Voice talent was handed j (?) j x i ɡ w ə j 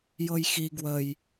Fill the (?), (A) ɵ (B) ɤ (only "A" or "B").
B